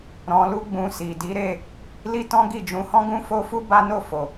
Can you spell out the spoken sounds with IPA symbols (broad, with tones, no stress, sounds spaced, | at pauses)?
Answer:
ɾ ɔ̃˧ l u˦ ɡ͡b ũ˧ s i˨ d i˨˦ ɾ e˦˨ | l i˦ t ɔ̃˦ ɡ i˦˨ d͡ʒ ũ˨˦ h ɔ̃˦ ɡ ũ˦ f o˦ f u˦ b a˦ n o˦˨ f o˨